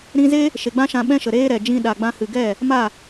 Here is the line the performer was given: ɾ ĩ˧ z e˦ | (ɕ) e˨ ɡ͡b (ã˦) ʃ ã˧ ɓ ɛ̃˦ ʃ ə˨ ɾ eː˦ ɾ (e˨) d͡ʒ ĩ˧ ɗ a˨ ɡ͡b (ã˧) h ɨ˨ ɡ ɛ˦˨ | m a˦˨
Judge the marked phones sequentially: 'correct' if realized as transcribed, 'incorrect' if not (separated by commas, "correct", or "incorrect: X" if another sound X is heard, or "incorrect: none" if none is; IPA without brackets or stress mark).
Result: incorrect: ʃ, correct, incorrect: ɛ˨, correct